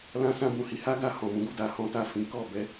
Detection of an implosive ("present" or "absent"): absent